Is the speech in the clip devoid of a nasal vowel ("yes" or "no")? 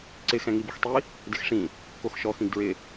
no